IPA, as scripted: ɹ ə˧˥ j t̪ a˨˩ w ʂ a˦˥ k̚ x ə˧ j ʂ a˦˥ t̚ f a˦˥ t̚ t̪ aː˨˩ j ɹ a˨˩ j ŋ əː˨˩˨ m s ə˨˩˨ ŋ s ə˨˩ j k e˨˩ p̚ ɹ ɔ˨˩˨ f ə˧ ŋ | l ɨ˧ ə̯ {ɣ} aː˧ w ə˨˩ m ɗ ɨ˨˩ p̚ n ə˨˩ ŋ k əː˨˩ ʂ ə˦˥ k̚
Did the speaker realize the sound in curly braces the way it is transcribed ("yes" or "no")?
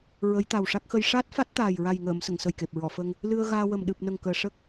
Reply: yes